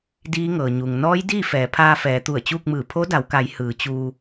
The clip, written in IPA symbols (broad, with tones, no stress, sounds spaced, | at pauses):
d iː˧˥ ŋ ɤː˩ ɲ u˩ ŋ n ɔː˧˥ j d iː˥˨ f ɛː˩˧ pʰ aː˧ f ɛː˩˧ t̪ u˧˩ ə̯ t͡ɕ uː˥˨ k̚ m ɯː˧˩ pʰ o˧˥ d a˩˧ w k a˩˧ j h ɯː˩˧ t͡ɕ uː˧